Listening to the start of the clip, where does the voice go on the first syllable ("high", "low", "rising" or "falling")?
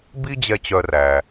high